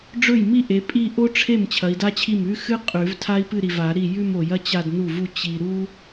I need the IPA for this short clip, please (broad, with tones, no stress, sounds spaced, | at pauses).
ɖ͡ʐ ɵ˥˩ j m i˥˧ ʔ e˨˦ pʼ i˥˧ ʔ o˥ ʈ͡ʂʰ e˥˩ m t͡ɕʰ ɐ˨˦ i̯ d a˥ t͡ɕʰ i˥˩ m ʉ˥ x ɨ˥ qʼ ʉ˨˩˦ v tʰ a˥ i̯ p ɨ˥˧ ɾ i˨ v a˨˩˦ ɾ i˥˩ j ʉ˥˧ m o˨ j ɐ˥ t͡ɕ a˥˧ d n u˥˩ v u˥˧ t͡ɕ i˨ ɾ u˥